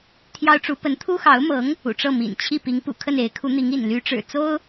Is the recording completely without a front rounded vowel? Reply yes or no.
no